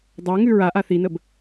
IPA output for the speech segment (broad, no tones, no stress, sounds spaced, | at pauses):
dˤ a ŋ ʉ ɹ a ʔ a θ i n ə b